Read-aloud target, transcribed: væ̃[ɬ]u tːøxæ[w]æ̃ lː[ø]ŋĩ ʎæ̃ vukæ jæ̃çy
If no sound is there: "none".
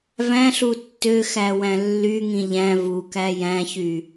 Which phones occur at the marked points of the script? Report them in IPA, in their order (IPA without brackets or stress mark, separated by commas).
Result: ɬ, w, y